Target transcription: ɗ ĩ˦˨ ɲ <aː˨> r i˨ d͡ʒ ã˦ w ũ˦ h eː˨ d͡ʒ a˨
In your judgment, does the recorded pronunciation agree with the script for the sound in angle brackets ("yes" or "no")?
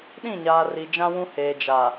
yes